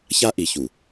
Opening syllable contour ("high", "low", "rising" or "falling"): high